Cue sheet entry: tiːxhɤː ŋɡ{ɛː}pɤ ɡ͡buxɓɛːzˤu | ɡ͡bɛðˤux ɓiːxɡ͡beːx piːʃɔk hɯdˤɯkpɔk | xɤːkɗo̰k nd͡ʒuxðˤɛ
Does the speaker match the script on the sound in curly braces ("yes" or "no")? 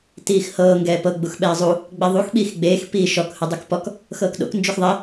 yes